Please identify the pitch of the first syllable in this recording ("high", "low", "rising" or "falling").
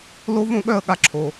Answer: high